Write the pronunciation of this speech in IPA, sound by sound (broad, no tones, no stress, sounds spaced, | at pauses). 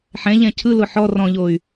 ħ ɛ̃ ʎ ɛ̃ cʰ ɯ l ʊ ħ ɔ r ɔ̃ ʎ o y̯